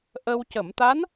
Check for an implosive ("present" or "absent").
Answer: absent